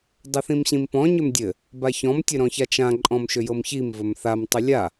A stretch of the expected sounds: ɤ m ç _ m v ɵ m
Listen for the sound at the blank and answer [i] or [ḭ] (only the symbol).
i